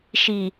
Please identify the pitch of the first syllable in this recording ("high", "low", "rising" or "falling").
low